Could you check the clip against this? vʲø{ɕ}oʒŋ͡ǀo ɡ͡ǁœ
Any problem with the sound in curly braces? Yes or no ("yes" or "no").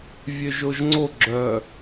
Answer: yes